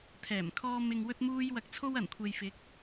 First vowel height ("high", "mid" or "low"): mid